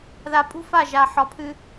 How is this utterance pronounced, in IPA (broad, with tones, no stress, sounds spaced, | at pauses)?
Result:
ð a˨ pʼ ṳ˦ f a˦˨ ʒ a˨ ħ ɒ˨ pʰ ɨ˦